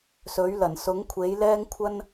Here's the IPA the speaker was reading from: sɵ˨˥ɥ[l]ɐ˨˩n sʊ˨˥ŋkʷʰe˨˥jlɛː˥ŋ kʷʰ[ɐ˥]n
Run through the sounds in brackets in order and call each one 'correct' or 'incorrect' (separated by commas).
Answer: correct, correct